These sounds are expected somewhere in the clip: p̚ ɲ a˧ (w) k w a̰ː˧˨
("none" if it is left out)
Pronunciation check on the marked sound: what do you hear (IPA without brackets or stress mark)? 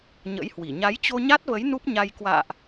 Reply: j